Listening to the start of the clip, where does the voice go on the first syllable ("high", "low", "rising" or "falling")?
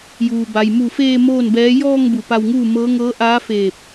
low